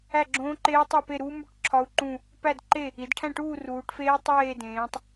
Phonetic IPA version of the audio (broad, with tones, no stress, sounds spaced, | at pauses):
æ˥˨ ɡ͡ǁ õː˦˥ ǃ eː˦˥ tˤ æ˥˨ p e˥˨ ɾ uː˦˥ m u˥˨ ʈ ǁʰ ɒ˦˥ u̯ ǃ ũ˥˨ | p æ˥˨ d ǃ e˥˨ | i˩˧ d ʈʰ æ̃˥˨ ʈ uː˥˨ r uː˩˧ ʈ f eː˦˥ i̯ tˤ eː˥˨ d ẽː˩˧ tˤ